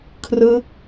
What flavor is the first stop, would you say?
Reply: aspirated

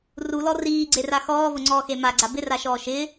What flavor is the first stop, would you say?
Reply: click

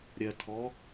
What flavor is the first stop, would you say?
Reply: aspirated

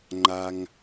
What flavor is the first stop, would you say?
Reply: click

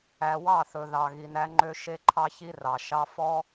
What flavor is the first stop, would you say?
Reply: click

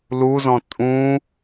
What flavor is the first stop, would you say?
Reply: ejective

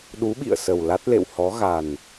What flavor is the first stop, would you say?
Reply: implosive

